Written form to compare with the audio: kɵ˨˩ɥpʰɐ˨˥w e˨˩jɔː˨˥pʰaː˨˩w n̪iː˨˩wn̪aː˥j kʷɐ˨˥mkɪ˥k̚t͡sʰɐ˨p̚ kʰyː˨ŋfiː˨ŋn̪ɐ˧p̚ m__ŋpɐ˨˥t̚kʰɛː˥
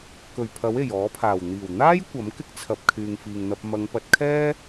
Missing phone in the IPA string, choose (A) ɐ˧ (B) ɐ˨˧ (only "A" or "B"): B